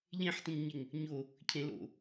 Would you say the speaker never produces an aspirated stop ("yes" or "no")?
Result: no